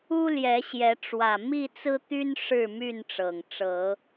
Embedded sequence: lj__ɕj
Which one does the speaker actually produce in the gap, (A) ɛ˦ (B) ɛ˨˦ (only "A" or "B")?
B